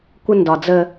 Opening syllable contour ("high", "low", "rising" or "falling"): high